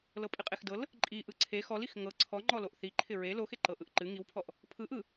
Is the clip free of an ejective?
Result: no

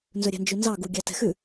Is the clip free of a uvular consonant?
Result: yes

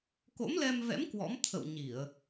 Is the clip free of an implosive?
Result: yes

